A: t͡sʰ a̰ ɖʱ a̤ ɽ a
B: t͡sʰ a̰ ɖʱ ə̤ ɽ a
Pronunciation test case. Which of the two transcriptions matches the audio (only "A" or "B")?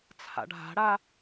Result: A